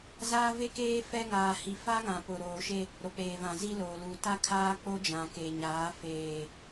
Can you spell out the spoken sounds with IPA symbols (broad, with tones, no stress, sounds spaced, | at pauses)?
z aː˦ v e˦ k eː˦ f ɛ˦ ŋ aː˨ h i˨ f a˦ ŋ ã˨ p ʊ˨ ɾ oː˨ ʃ e˦ | ɾ o˨ k͡p eː˨ v ã˨ z i˦ l oː˨ l uː˨ t a˦ kʰ aː˦ k͡p o˦ d͡ʒ ã˨ k e˨ ɲ aː˨˦ f eː˨